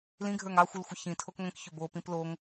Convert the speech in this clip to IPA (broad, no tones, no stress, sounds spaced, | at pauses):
l ĩ ɡʱ ə˞ ŋ ɑ xʷ ɯ l xʷ ə ç ĩ tʰ o k ŋʷ ĩ k ç ʏ b o p ĩ p l o ŋ